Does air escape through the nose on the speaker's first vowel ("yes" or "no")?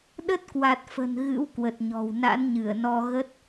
no